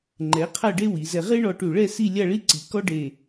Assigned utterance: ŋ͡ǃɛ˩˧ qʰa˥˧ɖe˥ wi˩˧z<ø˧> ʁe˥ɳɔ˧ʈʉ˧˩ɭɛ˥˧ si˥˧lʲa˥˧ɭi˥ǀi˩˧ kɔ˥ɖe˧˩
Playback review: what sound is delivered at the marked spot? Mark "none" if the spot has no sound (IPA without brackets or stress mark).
ɛ˧